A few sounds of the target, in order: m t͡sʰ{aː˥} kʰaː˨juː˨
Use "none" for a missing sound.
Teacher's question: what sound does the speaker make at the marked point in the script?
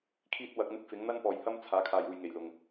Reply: aː˨˥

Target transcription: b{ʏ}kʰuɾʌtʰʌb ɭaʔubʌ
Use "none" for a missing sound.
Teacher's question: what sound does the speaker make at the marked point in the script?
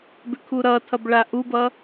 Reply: ʏ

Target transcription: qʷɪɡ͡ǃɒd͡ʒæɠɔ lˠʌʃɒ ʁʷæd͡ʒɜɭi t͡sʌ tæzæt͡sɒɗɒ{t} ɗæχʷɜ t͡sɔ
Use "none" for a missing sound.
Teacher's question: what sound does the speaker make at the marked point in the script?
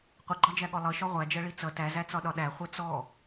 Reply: none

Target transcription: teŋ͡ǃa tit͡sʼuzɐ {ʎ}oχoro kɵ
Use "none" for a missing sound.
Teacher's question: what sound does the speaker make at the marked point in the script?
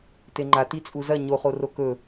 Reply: ɲ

